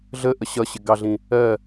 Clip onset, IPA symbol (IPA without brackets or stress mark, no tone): ɮ